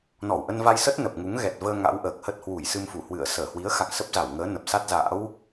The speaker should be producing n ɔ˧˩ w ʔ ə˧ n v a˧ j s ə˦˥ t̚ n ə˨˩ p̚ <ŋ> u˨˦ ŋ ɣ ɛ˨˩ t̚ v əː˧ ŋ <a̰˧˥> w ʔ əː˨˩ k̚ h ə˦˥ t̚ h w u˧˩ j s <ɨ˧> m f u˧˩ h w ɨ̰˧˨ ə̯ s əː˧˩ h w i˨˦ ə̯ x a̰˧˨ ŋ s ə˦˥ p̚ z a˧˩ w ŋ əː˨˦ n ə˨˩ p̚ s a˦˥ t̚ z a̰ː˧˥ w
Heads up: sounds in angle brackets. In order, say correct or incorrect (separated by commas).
correct, correct, correct